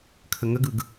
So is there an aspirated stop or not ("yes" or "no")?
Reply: yes